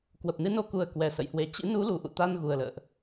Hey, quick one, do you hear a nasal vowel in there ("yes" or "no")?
no